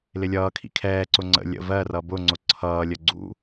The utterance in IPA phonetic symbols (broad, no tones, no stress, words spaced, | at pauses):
lɪlʲʌːkʰḭ kʰɛːǀʊ ŋ͡ǀə̰ lʲə̰ vɜrʌ bʊ ŋ͡ǀʊǀʰʌːlʲə ɡ͡ǀṵ